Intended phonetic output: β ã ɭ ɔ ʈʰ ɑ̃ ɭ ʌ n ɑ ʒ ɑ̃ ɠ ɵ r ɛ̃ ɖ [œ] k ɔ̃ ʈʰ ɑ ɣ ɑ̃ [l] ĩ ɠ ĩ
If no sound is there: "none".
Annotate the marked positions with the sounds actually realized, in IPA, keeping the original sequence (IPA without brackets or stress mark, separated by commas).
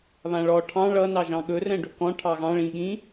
ɵ, ɭ